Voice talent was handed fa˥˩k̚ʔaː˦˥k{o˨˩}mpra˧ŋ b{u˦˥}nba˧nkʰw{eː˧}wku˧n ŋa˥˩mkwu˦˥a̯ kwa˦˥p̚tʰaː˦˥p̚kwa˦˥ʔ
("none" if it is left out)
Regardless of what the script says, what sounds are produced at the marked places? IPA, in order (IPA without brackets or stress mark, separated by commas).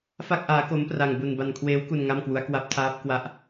o˦˥, u˧, eː˦˥